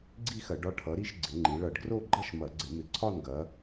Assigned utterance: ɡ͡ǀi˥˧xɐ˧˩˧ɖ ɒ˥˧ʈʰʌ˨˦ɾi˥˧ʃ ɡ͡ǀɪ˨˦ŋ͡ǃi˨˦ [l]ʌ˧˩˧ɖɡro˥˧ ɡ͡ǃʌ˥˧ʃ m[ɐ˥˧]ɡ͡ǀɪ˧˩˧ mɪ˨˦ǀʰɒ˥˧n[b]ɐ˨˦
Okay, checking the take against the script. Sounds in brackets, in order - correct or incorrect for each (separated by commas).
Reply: incorrect, incorrect, incorrect